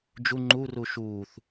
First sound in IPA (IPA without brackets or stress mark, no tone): d͡ʒ